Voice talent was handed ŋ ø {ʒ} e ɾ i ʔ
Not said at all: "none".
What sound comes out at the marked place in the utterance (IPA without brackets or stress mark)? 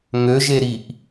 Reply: ʒ